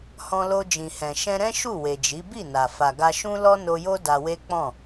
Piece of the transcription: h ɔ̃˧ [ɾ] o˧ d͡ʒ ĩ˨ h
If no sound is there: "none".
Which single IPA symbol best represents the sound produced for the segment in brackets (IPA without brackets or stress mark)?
l